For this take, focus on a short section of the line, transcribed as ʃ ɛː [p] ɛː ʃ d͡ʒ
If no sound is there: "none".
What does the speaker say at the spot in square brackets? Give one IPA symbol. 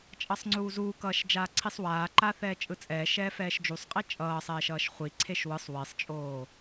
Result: f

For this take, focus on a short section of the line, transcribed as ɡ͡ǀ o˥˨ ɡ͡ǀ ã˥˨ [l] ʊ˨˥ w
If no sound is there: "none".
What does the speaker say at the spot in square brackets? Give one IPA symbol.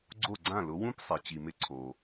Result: l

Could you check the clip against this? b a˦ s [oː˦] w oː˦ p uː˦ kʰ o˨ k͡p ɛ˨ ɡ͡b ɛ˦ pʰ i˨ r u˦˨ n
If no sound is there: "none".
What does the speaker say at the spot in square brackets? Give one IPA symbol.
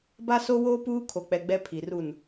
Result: o˦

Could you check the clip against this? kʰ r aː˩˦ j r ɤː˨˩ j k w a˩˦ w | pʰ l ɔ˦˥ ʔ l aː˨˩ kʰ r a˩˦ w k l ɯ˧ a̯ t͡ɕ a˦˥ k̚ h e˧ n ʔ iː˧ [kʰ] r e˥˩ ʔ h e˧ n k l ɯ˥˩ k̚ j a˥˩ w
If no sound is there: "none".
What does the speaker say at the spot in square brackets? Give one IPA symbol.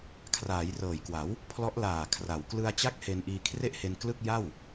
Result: kʰ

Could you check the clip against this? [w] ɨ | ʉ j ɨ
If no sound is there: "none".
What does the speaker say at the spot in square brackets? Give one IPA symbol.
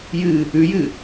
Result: j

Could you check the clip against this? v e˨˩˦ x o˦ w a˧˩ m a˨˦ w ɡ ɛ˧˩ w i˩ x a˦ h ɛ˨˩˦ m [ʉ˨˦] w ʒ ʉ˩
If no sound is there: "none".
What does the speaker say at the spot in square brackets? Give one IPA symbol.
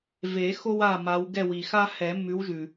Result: ʉ˨˦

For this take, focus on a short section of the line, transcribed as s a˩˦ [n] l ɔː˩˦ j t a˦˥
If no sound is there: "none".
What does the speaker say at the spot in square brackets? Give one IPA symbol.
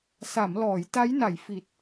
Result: m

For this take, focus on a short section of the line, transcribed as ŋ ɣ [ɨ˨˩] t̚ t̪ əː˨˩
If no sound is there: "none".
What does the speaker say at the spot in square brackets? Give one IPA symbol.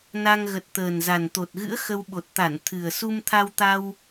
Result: ə˨˩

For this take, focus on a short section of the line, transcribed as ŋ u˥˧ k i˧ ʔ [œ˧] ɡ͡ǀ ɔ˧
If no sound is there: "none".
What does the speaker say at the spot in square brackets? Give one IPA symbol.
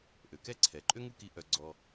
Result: œ˧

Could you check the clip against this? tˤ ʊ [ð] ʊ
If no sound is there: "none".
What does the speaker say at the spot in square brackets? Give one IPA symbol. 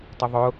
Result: ðˤ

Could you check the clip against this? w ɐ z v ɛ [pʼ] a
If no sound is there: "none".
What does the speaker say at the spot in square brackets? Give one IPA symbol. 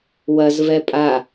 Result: pʼ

